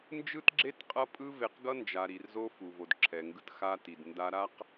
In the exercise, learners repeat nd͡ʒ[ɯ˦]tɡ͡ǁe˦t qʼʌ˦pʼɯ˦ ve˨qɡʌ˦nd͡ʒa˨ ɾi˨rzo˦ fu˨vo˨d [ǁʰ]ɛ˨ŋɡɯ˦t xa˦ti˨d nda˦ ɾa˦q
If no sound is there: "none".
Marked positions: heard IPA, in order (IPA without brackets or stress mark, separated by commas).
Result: ɯ˦, ǁʰ